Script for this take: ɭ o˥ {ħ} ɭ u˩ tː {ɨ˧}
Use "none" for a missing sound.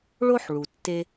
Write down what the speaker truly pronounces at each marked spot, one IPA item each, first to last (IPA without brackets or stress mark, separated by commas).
ħ, e˧